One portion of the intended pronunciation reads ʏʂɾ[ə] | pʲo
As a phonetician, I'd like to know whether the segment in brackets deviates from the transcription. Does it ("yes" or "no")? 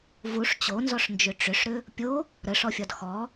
yes